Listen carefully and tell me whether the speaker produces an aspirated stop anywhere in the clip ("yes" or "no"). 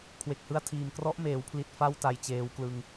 yes